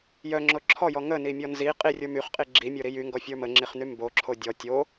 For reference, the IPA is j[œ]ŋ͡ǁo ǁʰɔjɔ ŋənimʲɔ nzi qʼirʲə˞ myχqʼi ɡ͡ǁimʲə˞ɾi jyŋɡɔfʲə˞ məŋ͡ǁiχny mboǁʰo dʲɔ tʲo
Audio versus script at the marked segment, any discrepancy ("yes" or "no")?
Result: no